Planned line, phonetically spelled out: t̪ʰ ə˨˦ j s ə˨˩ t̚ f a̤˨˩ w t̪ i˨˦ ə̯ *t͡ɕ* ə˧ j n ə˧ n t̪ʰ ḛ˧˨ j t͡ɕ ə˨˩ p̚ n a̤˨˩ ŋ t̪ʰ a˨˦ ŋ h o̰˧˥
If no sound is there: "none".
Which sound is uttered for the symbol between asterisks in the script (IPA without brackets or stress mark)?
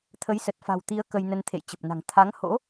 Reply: k